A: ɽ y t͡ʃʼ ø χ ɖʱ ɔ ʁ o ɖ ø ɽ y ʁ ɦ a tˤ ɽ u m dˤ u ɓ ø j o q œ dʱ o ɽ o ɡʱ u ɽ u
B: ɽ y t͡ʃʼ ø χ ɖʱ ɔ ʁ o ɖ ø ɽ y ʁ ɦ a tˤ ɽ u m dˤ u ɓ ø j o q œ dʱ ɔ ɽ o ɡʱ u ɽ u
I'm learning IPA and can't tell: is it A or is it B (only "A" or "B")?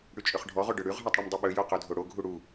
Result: A